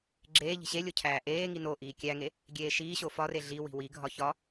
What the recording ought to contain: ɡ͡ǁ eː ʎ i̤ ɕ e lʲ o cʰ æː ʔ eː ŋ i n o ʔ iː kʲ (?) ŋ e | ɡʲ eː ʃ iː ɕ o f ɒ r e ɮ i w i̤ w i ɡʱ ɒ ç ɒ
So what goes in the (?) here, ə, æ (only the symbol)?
æ